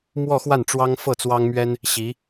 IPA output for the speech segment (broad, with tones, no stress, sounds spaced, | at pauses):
m w ɔ˥˧ x w a˥˩ n ʈ͡ʂ w ɑ˥ ŋ f ɤ˥˩ t͡s w ɑ˥ ŋ m ɥ ɛ˥ n | ɕ i˧˥